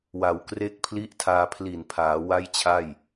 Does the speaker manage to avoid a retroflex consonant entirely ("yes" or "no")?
yes